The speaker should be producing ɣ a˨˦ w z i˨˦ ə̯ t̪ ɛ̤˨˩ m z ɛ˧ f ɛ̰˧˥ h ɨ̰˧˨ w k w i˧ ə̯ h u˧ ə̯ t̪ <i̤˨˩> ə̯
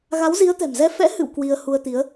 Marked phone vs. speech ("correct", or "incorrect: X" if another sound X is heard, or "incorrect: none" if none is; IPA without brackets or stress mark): incorrect: i˨˦